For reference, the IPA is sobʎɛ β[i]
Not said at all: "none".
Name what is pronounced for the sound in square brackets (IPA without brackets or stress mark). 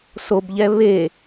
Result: e